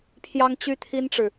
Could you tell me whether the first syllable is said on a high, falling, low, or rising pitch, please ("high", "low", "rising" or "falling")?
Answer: high